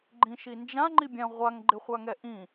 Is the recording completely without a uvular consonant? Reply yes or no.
no